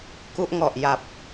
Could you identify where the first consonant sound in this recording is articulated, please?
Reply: velar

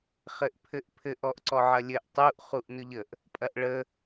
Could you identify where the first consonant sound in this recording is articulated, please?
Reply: uvular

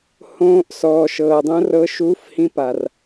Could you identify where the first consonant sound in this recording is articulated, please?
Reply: glottal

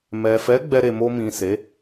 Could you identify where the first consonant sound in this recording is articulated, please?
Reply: labial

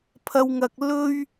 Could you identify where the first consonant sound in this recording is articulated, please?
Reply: labial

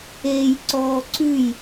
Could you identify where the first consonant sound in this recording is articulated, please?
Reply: palatal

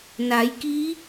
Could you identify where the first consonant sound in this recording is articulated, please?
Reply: alveolar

